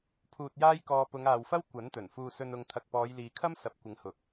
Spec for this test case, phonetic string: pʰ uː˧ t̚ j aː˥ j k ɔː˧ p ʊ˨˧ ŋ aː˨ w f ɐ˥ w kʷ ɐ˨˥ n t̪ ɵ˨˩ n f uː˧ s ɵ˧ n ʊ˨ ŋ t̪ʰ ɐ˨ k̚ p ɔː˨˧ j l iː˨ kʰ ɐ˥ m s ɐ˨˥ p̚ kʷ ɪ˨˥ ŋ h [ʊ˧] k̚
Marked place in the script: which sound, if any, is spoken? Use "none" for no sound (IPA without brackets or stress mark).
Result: ʊ˨˥